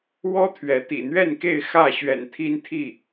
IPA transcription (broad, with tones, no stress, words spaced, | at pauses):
wɔ˦ t̪ʰɥɛ˨˦t̪ḭ˨˩ n̪ɥɛ˥˨nke˥˨ɪ̯ xä˥˨ ɕɥɛ̰˨˩n t̪ʰi˦nt̪ʰi˥˨